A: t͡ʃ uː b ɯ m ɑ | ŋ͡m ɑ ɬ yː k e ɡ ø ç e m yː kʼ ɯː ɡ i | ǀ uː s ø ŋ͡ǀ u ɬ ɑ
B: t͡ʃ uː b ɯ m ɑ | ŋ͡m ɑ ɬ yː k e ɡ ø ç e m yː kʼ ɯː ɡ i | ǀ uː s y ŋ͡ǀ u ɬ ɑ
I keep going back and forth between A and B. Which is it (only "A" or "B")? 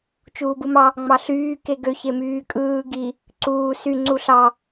B